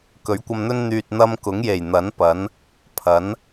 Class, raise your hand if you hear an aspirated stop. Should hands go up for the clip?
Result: yes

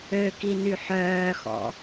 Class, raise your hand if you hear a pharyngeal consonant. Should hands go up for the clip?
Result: yes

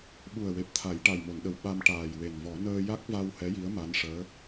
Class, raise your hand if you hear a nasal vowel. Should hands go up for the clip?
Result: no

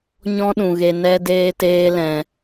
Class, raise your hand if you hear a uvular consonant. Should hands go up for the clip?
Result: no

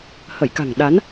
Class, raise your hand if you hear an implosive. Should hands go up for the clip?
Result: yes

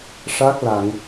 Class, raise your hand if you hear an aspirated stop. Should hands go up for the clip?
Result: no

